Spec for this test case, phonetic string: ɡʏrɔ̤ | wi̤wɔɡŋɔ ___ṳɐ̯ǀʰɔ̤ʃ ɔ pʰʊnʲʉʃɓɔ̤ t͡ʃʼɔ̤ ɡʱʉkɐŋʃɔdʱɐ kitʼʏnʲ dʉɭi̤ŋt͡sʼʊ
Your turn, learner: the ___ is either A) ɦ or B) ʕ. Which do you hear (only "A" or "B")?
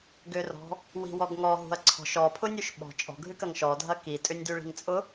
A